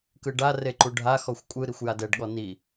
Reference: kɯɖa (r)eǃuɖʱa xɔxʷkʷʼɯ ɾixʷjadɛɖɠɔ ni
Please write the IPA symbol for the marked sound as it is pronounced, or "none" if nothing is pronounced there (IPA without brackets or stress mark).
r